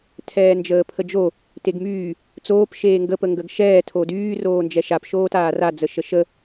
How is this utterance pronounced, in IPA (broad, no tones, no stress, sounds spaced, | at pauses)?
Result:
tʰ ɛː n d͡ʒ əː pʰ ə d͡ʒ o | t e ɡ m yː | t͡s oː p ʃ eː ŋ ɡ ə p ə ŋ ɡ ə ɡ ʃ ɛː tʰ o d yː r oː n d͡ʒ ɛ ʃ a p ʃ oː t aː r a d͡z ə ʃ ə ʃ ə